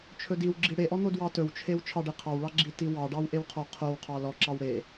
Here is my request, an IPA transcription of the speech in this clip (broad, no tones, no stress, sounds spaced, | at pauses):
t͡ʃʰ ɵ d i w ɡ͡ǁ i ɽ e ʔ ɔ n̪ o d w ɑ t ɵ w t͡ʃʰ e w t͡ʃʰ ɑ ɖ e qʰ ɑ w ɭ ɑ ɡ͡ǁ i t i w ɑ ɖ ɑ w ʔ e w qʰ ɔ qʰ o w qʰ ɑ l ɔ ǁ ɑ w ɽ e